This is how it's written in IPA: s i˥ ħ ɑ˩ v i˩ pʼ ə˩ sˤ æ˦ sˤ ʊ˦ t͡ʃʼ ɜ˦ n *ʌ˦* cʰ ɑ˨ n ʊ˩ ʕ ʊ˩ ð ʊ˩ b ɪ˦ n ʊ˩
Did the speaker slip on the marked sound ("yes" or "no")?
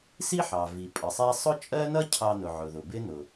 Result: no